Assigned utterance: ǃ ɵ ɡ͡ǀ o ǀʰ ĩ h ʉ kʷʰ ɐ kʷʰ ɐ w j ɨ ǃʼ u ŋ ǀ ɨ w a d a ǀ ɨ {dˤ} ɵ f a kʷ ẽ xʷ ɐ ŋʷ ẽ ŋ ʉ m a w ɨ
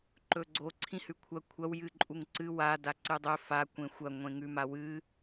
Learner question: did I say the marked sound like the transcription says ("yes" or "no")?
yes